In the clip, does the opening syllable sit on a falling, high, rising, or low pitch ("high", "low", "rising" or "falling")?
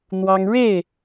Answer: high